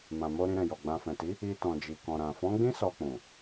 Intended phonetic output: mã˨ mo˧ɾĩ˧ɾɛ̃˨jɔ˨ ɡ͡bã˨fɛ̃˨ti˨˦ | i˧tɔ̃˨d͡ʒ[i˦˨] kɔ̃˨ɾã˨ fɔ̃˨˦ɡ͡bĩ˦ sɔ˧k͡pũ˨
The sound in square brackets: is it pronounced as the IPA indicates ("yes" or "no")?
no